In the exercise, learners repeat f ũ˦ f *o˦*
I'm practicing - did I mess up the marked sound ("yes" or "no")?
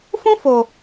yes